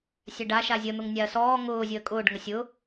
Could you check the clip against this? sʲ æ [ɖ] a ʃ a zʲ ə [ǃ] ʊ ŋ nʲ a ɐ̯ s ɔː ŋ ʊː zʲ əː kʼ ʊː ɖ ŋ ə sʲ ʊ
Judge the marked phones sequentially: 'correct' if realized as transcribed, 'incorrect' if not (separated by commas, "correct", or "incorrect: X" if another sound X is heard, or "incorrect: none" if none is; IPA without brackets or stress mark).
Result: correct, incorrect: n̪